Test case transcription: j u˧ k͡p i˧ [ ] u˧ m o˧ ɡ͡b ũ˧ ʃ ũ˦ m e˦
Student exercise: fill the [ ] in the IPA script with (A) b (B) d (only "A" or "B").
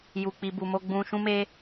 A